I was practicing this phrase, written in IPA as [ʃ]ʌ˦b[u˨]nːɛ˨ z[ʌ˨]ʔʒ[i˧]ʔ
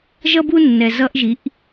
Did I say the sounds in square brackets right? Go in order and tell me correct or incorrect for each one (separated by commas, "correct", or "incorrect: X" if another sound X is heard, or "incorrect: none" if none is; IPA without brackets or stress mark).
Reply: incorrect: ʒ, incorrect: u˦, incorrect: ʌ˧, incorrect: i˨˦